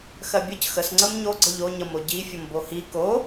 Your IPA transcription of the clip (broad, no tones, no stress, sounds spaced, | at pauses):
x ɜ bʲ ə c x ə s ŋ͡ǀ ə m ɲ o ɡ͡ǀ ə ʎ o ɲ ʌ m o ɟ i fʲ ʌ m b o h i k o